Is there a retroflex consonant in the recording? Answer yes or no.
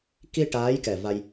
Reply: yes